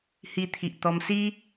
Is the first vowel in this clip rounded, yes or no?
no